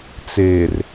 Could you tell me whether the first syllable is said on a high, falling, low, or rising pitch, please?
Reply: low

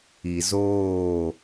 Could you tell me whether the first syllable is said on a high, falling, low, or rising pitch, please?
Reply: low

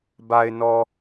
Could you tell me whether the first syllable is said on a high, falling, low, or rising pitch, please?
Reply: low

